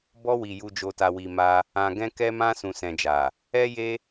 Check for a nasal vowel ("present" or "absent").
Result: present